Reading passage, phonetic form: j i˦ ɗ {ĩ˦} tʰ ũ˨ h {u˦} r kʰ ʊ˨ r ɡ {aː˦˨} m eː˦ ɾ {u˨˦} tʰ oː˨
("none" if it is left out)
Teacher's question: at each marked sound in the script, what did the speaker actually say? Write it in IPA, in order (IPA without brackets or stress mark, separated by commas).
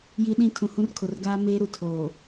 ĩ˦, ũ˦, aː˦, u˨